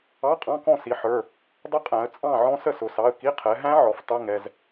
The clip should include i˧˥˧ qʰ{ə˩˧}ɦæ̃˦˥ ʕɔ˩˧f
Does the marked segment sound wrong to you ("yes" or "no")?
yes